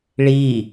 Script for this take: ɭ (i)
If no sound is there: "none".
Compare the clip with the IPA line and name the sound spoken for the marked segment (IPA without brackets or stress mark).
i